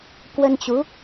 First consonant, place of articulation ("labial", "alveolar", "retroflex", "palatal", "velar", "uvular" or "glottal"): velar